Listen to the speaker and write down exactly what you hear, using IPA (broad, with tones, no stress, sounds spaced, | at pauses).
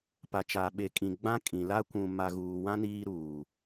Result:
p a˨ t͡ʃ aː˨ ɓ e˨ kʼ ĩ˨ ɡ͡b ã˦ kʼ ĩ˨ l a˦ kʷ ũ˨ m a˨ ɣ uː˨ w ã˦ n iː˦ ɾ uː˨